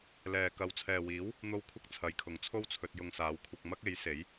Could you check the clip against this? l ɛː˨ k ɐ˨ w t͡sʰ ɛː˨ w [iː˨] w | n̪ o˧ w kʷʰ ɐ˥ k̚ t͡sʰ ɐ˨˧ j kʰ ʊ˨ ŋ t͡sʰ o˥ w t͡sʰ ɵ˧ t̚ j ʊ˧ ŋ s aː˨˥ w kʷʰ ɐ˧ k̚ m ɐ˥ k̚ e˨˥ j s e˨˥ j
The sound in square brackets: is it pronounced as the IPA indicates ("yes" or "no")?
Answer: no